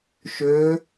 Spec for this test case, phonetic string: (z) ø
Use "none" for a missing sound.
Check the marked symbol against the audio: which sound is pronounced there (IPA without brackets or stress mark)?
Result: ʃ